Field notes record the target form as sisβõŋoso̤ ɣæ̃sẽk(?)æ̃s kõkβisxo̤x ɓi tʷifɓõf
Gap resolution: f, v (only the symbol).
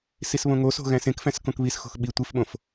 f